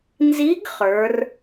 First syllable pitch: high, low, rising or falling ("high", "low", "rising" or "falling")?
rising